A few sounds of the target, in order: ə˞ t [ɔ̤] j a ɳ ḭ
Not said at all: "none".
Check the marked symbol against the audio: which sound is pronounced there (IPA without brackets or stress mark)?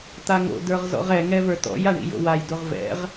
ɔ̰